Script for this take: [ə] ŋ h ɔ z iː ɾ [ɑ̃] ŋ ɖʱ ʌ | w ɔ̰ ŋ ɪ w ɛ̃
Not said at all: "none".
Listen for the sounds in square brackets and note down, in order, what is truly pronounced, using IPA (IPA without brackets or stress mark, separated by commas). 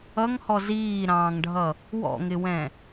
ʌ, ɑ̃ː